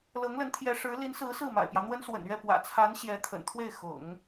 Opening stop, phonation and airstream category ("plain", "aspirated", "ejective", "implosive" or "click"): aspirated